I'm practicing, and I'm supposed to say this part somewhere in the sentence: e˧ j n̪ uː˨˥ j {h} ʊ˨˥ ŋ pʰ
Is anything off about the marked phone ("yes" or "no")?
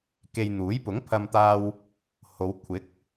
yes